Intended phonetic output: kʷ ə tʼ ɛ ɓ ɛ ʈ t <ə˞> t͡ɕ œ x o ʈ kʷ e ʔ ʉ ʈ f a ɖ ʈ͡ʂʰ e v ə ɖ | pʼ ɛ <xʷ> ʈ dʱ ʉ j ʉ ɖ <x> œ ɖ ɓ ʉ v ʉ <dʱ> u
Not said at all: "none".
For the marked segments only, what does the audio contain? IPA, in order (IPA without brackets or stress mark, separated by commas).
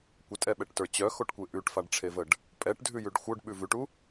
ə˞, none, xʷ, ʈ